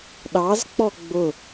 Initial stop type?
implosive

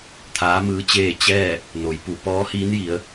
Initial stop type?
aspirated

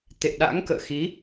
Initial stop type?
plain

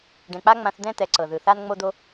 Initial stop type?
plain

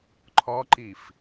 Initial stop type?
click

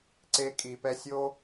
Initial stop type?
click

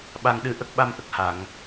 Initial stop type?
implosive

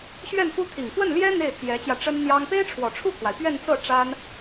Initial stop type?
aspirated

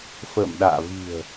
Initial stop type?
implosive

